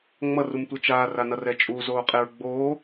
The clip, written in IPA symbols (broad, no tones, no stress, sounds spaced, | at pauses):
ŋ͡m ʌ r u m tʷ ɛ t͡ʃ aː r a n ʌ r ɛ t͡ʃʼ u z oː qʼ e ɹ ɡ͡b oː